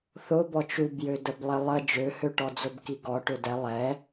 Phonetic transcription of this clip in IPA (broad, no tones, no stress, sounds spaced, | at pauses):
θ ʊ b ɔ t͡ʃ u b j ø d ə b lˠ ɪ lˠ ə d͡ʒ ø h ø ʈ ɔ d͡z ʊ b k i ɡ ɔ ʈ ø d ɛ lˠ ɛ